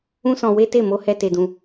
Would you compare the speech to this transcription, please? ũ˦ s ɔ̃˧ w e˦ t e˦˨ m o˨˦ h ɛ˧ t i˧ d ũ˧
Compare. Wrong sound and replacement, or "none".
i˧ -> e˧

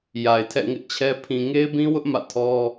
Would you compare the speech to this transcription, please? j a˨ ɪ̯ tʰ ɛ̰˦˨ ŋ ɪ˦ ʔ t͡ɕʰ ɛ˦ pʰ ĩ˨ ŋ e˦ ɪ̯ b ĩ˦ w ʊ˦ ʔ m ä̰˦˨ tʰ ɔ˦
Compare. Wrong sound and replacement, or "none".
none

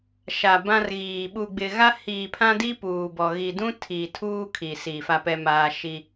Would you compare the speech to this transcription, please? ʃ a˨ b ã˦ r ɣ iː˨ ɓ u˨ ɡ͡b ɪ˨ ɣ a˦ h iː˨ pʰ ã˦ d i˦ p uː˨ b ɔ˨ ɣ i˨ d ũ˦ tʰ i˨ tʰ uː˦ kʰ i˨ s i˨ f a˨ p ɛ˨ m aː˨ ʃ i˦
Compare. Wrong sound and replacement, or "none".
none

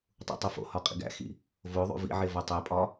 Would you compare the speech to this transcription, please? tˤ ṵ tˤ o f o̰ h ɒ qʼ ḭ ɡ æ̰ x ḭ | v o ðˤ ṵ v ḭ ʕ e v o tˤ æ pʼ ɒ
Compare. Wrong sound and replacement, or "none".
none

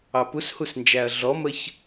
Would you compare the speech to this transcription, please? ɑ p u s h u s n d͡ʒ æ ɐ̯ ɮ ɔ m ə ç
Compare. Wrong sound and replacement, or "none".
none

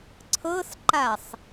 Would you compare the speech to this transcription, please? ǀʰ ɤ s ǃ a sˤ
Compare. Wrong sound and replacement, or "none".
none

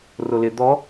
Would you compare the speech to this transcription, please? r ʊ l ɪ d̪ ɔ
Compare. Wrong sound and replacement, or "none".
none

